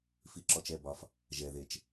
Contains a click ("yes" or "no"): yes